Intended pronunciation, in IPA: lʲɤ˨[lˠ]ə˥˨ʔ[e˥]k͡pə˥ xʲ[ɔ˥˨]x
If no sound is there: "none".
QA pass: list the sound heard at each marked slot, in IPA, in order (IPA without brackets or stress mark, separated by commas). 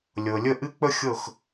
lʲ, ɨ˥, ɤ˥˨